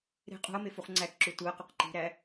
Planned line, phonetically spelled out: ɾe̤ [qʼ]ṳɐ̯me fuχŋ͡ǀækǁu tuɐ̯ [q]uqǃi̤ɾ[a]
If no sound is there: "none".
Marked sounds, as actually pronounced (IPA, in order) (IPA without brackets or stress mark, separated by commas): qʼ, q, æ